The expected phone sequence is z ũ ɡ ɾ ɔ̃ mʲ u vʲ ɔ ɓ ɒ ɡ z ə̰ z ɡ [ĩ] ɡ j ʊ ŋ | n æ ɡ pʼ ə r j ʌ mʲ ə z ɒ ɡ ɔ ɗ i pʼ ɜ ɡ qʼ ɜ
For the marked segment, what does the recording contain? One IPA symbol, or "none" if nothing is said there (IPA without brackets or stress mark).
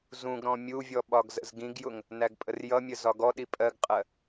ĩ